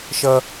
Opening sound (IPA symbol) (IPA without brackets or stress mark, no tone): ʃ